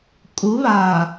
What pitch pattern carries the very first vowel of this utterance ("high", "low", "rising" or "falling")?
rising